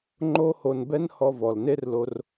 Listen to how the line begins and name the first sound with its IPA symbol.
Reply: ŋ͡ǃ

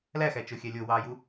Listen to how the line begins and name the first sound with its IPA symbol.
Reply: l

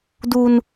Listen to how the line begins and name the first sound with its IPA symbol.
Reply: d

